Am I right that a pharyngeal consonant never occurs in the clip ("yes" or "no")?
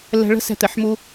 no